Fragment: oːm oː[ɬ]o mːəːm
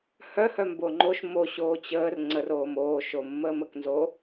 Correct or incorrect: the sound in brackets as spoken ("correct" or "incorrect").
incorrect